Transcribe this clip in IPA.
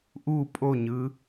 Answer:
ʔ u pʼ o ɲ ɯ

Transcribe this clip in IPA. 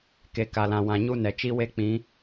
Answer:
k e˨ k a˨ l ã˨ w ã˨ ɲ u˦ n ɛ˨ t͡ʃ i˦ w e˦ k͡p ĩ˨˦

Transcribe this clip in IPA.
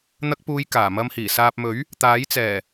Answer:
n̪ ɐ˧ k̚ p uː˨˧ j k aː˨˩ m ɐ˧ m h iː˨˩ s aː˨ p̚ m ɵ˨˥ ɥ | t̪ aː˨˥ j t͡s ɛː˨˩

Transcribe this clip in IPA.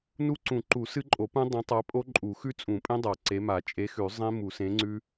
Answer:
n u˦˥ ǀ ũ˨˩˦ ǃ u˨˩˦ s ɨ˦˥ ǃʼ o˨˩˦ p ũ˦˥ dˤ ẽ˨˥ tˤ a˨˥ pʼ o˦˥ ǃʼ u˨˩˦ x ʉ˦˥ t͡sʼ ũ˨˩˦ pʼ ẽ˦˥ dˤ a˨˩˦ ǀ e˨˥ m a˨˩˦ t͡ʃʼ e˨˥ x ʉ˨˩˦ zˤ ẽ˦˥ m u˨˩˦ s ẽ˨˥ ŋ͡ǀ ʉ˦˥

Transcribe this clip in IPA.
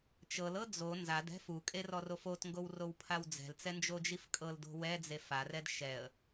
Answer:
t͡ʃ ɤ l ɤ d͡z o n z a d ɛ̤ f u kʼ e r ɔ r o f o t ŋ ɡ o w r o w pʰ a w d͡z ɛ̤ l t͡s ɛ n d͡ʒ o d͡ʒ i f kʼ ɤ l d o̤ w ɛ d͡z e f a r ɛ d ʃ ɛ ə̯

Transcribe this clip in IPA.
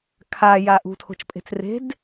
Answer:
kʰ a j a ʔ ṳ tʰ o̤ t͡ʃ pʼ e̤ t͡s r e̤ d

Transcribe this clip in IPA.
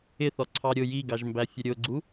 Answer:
ɪ θ ɔ ǀʰ ɑ ɾʲ ʊ j i ɡ ɑ ʒ m b æ fʲ ə ɾʲ ʊ ɡ͡ǀ u

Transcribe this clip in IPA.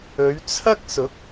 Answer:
ɵ˨˧ ɥ t͡sʰ ɐ˥ k̚ s ʊ˨˥ k̚

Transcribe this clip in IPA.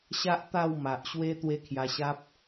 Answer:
ɕ a˦ ʔ t̪ a˥˧ w m a˨ ʔ ɕ w e˦ t̪ w e˦ kʰ j a˧ ɕ a˦ p̚

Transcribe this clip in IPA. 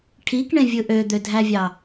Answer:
ʈʰ i k ɳ ẽ vʲ ɯ ʔ ø d̪ ø dʱ æ vʲ ɑ

